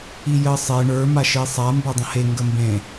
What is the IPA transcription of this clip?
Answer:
i j ə sˤ e ɳ ə˞ m a ʃ i sˤ a m b ə˞ dˤ ə̃ h e ŋ ɡ ə m b ẽ

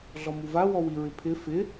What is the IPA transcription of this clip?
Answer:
ɮ ɔ m u v a w ɔ w i ɹ ɪ pʰ ɪ f ɪ

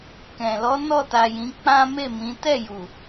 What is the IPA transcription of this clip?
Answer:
k ɛ̃˨ l ɔ˨˦ n ɔ˦˨ t a˨ j ĩ˨˦ k͡p ã˦ m e˦˨ m ĩ˨˦ t ɛ˦˨ j u˨

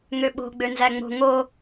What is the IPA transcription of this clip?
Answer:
ŋ ø ɓ o̤ ɡ͡b ø n z æ ŋ͡m o̤ ŋ o

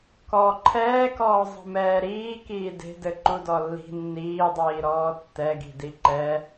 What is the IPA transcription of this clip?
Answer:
k ɔ ǃʰ ɛː k ɔː zˤ i̤ m ɛː ɾ iː k iː d e̤ d ɘ ǃ u d ɔ lː i̤ nː iː dˤ iː ɾ ɔː tː ɛ ɡ i̤ d i ǃ ɛ

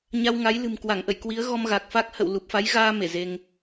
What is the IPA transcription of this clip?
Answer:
ɲ a˧ w ŋ a˨˦ j l ɨ̤˨˩ m k w a˧˩ ŋ ʔ ə̰˧˨ j k w i˨˦ ə̯ ɣ ɔ˧ m ɣ a˨˩ k̚ f a˦˥ k̚ h ə̰˧˨ w l u˨˩ p̚ f a˨˦ j ɣ aː˧ m e˧˩ z e˧ ŋ

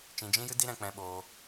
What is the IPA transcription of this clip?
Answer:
t͡ʃ ĩ˧ d͡ʒ ĩ˦ j ɨ˦ d i˦ ɾ ɛ̃˧ k͡p ɛ̃˧ ɓ oː˧

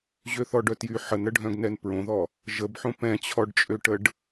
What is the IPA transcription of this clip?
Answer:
ʑ ø θ ɔ ɖ œ t j y ħ ə n ɾ ə ɖʱ œ̃ ɡ n ɛ n p ɹ õ ð ɔ | ʒ ə b ħ õ p ɛ̃ t͡ɕʰ ɔ ɖ t͡ʃʼ ø ʈ ə ɖ

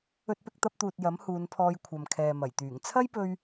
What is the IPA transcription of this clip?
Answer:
ɵ˧ t̚ p ɪ˧ k̚ t̪ ɐ˧ p̚ t̪ uː˨ t̚ j ɐ˨˥ m h uː˨˧ n pʰ ɔː˧ j kʷʰ ɐ˨ m kʰ ɛː˨ m ɐ˨˩ j t̪ yː˨˩ ŋ t͡sʰ ɐ˥ j p ɵ˧ ɥ

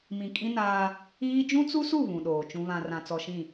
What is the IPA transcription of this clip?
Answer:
m ĩ˨ kʼ ĩ˦ n aː˦ | iː˦ d͡ʒ ũ˦ t͡s u˦ s u˦˨ β ũ˨ ɗ oː˨ t͡ʃ ũ˦ β ã˨ r ã˨ t͡s ɔ˨ ʃ ĩ˦˨

